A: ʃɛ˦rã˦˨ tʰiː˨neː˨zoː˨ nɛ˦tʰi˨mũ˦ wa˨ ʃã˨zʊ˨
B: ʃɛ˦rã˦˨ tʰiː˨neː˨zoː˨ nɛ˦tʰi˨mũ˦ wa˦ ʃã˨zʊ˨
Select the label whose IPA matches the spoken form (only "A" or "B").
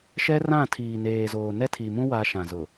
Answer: B